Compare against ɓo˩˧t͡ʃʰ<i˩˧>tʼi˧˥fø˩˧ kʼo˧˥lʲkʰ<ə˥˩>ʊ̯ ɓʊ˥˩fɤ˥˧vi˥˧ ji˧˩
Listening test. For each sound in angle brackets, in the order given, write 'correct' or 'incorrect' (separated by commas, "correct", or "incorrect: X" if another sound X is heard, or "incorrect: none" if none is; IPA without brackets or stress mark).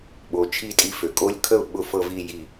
incorrect: i˥˧, correct